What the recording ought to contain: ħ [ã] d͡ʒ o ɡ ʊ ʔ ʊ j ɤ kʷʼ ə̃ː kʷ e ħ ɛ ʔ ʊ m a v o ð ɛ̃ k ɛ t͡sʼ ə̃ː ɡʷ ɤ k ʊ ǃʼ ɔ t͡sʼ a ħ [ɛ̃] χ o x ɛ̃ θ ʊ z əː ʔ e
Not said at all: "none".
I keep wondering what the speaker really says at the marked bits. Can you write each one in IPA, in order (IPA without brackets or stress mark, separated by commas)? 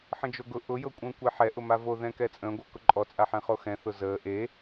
ə̃, ɛ̃